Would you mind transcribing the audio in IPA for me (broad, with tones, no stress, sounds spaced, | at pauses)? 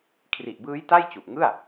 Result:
kʰ r i˨˩ ʔ b ɯː˦˥ j t a˥˩ j t͡ɕ u˨˩ ʔ ŋ ɯ˥˩ a̯